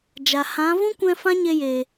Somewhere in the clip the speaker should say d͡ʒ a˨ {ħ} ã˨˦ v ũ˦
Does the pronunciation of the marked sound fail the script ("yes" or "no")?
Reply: yes